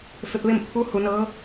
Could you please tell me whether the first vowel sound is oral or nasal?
oral